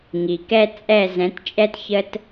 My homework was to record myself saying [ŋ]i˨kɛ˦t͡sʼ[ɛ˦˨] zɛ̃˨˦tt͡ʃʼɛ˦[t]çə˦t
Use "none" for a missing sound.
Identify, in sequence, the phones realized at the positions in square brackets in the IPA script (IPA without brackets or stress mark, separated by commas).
ŋ, ɛ˦˨, t